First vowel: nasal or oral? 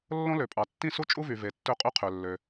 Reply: nasal